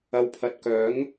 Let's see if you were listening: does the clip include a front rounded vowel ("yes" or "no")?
yes